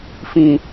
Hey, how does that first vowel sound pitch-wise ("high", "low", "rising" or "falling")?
low